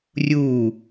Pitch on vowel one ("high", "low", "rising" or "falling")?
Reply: falling